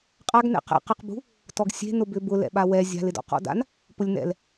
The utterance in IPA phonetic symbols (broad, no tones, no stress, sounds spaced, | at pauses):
qʼ a ɡ n ɛ̰ q ɛ̰ q ɪ q b ṳ | t ɔ ɡ sʲ e̤ n ʊ b ʏ b ʊ l ɛ̰ ɓ a w ɛ zʲ a̤ l ɪ d ɔ̰ q ɔ̰ d a̰ n | p ʊ lʲ n ɛ̰ l